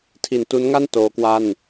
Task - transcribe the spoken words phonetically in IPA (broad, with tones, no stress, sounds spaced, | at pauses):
tʰ i˩˦ n t u˦˥ n ŋ a˥˩ n t oː˦˥ k w a˥˩ n